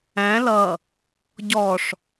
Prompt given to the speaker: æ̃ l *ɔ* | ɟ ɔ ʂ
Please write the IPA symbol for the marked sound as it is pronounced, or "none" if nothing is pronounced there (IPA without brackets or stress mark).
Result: ʌ